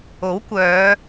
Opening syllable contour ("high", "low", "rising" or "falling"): rising